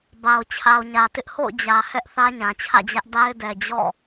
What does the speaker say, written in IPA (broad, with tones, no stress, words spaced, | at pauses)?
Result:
ba˨ʊ̯ t͡ɕʰa˨ʊ̯ɲä˨tɪ˦ʔ ho̰˦˨ʊ̯d͡ʑä˨ hɛ˦ʔ θä˦ɲã˨t͡ɕʰä̰˦˨d͡ʑä˦ʔ da˦ɪ̯dɛ˨d͡ʑɔ̰˦˨